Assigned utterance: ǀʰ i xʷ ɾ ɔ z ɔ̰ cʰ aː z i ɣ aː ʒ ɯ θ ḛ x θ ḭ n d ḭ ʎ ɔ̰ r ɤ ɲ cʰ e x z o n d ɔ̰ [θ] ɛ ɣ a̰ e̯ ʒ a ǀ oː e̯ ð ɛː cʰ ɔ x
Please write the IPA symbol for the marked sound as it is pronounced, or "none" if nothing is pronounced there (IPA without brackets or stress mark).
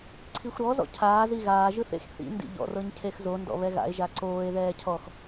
β